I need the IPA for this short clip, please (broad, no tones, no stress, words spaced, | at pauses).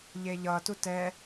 ʎeʎʌ tutɛ